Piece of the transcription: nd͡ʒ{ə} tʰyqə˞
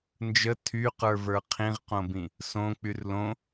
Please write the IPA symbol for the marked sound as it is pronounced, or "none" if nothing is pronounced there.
ə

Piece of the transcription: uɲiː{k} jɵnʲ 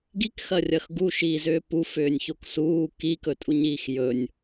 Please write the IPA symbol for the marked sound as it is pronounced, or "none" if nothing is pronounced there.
x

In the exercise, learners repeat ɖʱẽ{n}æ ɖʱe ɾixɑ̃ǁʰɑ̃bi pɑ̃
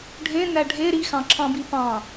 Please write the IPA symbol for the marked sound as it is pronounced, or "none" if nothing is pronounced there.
n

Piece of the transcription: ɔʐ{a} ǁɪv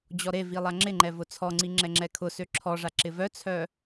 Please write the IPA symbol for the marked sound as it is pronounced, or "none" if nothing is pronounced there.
a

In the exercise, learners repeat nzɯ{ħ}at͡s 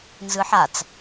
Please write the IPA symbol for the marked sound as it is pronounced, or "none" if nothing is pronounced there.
ħ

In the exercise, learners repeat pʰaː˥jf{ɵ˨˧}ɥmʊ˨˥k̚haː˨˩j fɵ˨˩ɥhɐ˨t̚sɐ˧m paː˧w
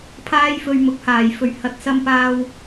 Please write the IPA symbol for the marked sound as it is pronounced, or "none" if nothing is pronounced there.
ɵ˧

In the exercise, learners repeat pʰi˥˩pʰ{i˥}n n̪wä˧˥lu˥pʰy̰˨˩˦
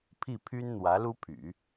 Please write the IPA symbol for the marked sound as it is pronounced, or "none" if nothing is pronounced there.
y˥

